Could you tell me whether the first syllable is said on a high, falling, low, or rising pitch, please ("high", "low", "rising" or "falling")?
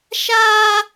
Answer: high